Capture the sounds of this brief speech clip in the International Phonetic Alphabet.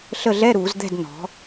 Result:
ɬ ə˦˨ ɮ ɛ˧˥˧ ɾ uː˧˩˧ z d̪ ɛ̤˦˨ d n ɔ̤˩˧

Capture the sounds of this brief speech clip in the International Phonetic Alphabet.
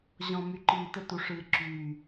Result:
ʑ ɔ̃˨ m y˨ ǃ iː˨ t ə˦ t u˨ ʂ ɨː˨ ǁ yː˨

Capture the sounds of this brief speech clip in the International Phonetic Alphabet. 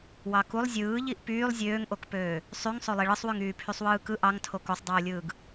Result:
w ɑ k u lˠ zʲ ɯː ʎ i ʔ p yː lˠ zʲ øː ŋ ʔ o k p øː | sˤ y ŋ sˤ o lˠ i ɭ ɯ sˤ w y ŋ yː pʰ y sˤ w ɯː k ɯ ʔ ɑ ŋ tʰ o k o sˤ dˤ ɯː lʲ ɯː ɡ

